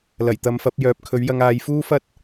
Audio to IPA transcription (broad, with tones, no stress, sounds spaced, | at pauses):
l ɐ˨˩ j t̪ ɐ˨˧ m f ɐ˨˥ p̚ j œː˨ p̚ kʰ ɵ˨˥ ɥ j ɐ˧ ŋ aː˨˧ j f uː˥ f ɐ˥ t̚